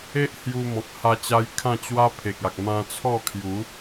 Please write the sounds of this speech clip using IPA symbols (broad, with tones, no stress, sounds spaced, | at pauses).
e˦ ʔ h j u˧ m ɔ̃˨ k̚ h a˧ t͡ɕ a˧ j kʰ ã˥˧ t͡ɕ w a˦ pʰ e˨ k̚ a˨ k̚ m ã˧ t͡sʰ ɔ˥˧ kʰ j u˨˦